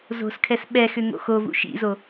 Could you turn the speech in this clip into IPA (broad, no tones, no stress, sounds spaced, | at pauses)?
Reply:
z o̤ s kʰ ɛ s ɓ ɛ x ʏ ŋ o̰ x o v ṵ ʃ ḭ z o